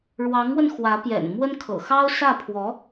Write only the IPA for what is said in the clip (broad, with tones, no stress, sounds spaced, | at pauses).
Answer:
ɻ w ɑ˧˥ ŋ w ə˧ n x w ä˧˥ p j ɛ̰˨˩ n m w ə˥ n kʰ ɤ̰˨˩ x ɑ˥ ʊ̯ s ä˥˩ pʰ w ɔ˧˥